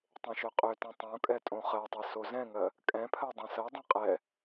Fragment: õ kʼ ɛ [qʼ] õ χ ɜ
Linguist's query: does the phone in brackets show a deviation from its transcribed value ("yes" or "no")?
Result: yes